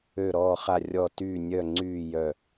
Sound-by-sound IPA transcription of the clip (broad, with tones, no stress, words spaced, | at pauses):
ø˧˩ɾɔː˧˩χa˧˩ rʲɔ˧˩tyː˧˩nʲœ˧˩ŋ͡ǀyː˧˩ jœ˧˩